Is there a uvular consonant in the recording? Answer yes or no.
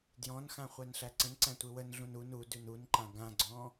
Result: yes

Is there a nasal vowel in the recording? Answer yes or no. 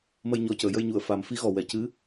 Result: no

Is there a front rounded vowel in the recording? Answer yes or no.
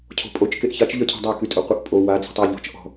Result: yes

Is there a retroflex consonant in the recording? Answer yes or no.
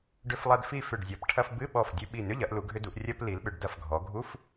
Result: yes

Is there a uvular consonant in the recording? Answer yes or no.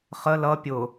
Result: yes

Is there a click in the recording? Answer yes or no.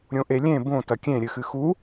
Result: no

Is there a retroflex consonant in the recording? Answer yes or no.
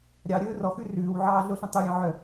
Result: no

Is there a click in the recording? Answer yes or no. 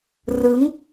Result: no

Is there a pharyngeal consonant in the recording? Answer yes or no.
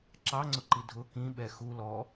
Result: no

